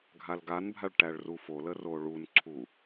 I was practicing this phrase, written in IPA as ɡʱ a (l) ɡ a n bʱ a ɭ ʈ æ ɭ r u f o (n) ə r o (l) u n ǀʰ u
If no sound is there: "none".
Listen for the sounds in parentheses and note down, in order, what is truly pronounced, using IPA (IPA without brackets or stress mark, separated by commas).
l, l, ɭ